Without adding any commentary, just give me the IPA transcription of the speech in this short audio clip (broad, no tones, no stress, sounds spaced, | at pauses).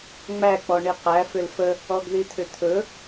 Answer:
ŋ͡m æ k͡p ɔ ɳ i q æ f ʏ l f ə | ɔ ɡ ð i t̪ʰ ʏ t̪ʰ ɵ